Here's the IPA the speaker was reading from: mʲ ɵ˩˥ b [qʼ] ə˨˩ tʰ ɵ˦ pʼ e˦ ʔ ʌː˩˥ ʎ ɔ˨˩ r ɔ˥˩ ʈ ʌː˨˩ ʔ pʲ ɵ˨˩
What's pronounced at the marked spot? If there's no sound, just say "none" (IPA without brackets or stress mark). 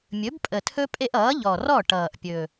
pʼ